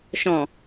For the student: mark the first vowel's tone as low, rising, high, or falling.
low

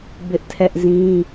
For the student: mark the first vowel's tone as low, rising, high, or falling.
high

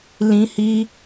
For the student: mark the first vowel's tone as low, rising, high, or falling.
high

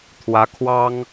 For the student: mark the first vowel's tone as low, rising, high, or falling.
rising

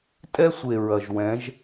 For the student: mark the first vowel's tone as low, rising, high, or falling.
high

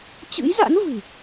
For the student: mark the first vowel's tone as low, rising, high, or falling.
rising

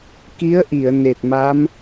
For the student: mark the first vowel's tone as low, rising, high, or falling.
rising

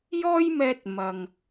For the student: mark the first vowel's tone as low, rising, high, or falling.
high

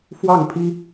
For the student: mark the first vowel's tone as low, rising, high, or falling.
falling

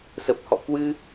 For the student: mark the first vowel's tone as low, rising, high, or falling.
low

